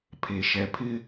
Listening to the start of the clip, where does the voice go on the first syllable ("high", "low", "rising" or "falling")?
low